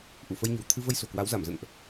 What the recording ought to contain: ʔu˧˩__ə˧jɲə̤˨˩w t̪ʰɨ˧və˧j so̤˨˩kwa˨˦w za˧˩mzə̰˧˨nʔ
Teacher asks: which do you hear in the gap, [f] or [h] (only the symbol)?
f